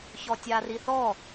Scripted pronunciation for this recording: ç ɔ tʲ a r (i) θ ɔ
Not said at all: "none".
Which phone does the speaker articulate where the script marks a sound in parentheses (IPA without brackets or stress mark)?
i